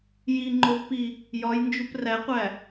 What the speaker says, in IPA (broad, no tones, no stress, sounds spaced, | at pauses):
j i ŋ͡ǃ o v p i | j ɒ j n d͡ʒ u p r æ qʷ æ